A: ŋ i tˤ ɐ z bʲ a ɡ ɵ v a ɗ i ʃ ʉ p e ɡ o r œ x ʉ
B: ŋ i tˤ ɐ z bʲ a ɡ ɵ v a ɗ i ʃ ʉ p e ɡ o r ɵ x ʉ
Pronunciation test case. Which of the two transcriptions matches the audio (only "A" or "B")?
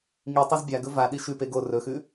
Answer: B